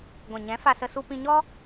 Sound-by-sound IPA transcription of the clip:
ɡʷ ɛ̃˨ ɲ ɛ̃˨˦ f a˧ s ə˧ s u˧ p ĩ˧ ɲ ɔ˦

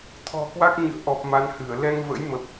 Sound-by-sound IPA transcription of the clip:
t̪ʰ ɔ̤˨˩ k w a˦˥ k̚ ɲ ɨ̰˧˨ ə̯ ʔ ɔ˨˩ p̚ m a˨˦ n h ɨ˧˩ ə̯ l ɛ˧ ŋ v ə̰˧˥ j m ə˨˩ p̚

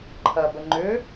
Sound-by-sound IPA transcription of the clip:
ǃʰ ɐ b ə ŋ͡ǃ ʏ

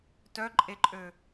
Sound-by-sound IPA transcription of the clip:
t œ ǃʼ e ǃʼ ø

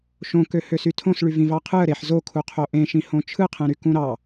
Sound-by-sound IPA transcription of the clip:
ʃ õ k ø h ø s y tʰ õ s ɭ y v ĩ v ɑ qʰ ɯ ə̯ ɾ e ħ z o kʰ u qʰ o ʔ ẽ ʃ ĩ h õ t͡ʃʰ ɯ qʰ ẽ ɾ y k ũ ɾ ɑ

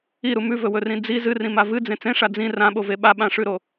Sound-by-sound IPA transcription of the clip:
i ɾ u m ʉ v ɵ w ɵ r ĩ d͡z i z ɨ r ĩ m a v ɨ d͡z ẽ t͡s ẽ ʂ a d͡z ĩ r ã ɓ o v e ɓ a ɓ ã ʂ ʉ ɾ o

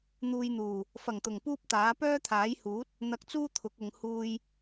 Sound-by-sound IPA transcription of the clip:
n̪ uː˧ j n̪ uː˨˩ | f ɐ˨˩ ŋ t̪ ʊ˨˩ ŋ p uː˥ p̚ t̪ aː˨˥ p œː˥ t̪ʰ aː˨˥ j h uː˨˥ t̚ | n̪ ɐ˧ k̚ t͡s uː˥ t̪ʰ ʊ˨˥ k̚ ʊ˨˧ ŋ h uː˥ j

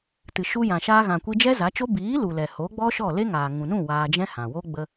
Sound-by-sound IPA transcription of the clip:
t ɨ˨ ʃ u˧ j ã˨ ʃ aː˧ ɣ ã˨ kʷ i˧ d͡ʒ ɛ˦ z a˨˦ t͡ʃ o˦ b iː˨˦ l u˨ l ɛ˨ h oː˨˦ ɡ͡b ɔ˦ ʃ ɔ˦˨ l e˦ ŋ aː˨ ŋ ũ˨ n ũ˦˨ w aː˧ d͡ʒ ɛ̃˦ h ã˨ w o˦ ɡ͡b ə˧

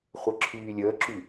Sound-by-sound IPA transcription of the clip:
χʷ ɛ ǁʰ yː lʲ əː ǁ y

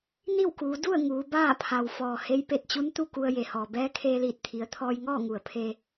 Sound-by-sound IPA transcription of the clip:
n i˥˨ w k uː˩˧ d u˥˨ ə̯ ŋ uː˩˧ b aː˥˨ pʰ a˩ w f ɔː˩ h e˧˥ j p e˧˩ t̚ t͡ɕ u˧˥ n t̪ u˥˨ k u˧ ə̯ j e˩ h ɔː˩ b ɛː˧˥ kʰ eː˧ l iː˧˩ t̚ t̪ʰ i˩˧ ə̯ t̪ʰ ɔː˧ j ŋ ɔː˥˨ ŋ u˩ ə̯ pʰ e˧

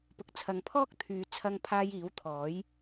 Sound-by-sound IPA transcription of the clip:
p ʊ˨ k̚ t͡sʰ ɐ˨ ŋ pʰ ɔː˥ k̚ t̪ʰ yː˨˧ t͡sʰ ɐ˧ ŋ pʰ aː˧ j iː˨˥ w t̪ʰ ɔː˨˥ j

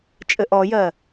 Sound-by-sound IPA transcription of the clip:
t͡ʃʼ ɘ ʔ ɔ j ɜ

